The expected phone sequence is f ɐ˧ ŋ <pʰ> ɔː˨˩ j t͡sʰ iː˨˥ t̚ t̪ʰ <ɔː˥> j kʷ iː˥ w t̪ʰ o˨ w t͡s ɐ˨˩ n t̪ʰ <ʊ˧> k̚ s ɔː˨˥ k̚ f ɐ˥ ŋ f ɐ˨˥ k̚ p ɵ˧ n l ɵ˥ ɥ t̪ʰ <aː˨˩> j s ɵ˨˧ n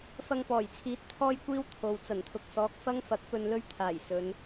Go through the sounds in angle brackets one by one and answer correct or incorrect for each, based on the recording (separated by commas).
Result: incorrect, correct, incorrect, correct